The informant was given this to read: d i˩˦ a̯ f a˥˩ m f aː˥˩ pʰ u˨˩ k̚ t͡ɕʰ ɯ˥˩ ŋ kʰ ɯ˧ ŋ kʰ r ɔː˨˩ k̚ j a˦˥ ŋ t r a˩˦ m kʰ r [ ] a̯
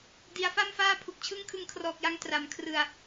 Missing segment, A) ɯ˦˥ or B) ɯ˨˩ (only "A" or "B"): B